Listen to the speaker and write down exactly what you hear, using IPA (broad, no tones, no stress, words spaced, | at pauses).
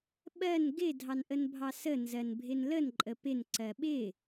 ɓɜn ɡɪ dʱɑnʔənbʱɑsə nzɜnbʱɪnlən ǃʼəpɪn ǀɜɓɪ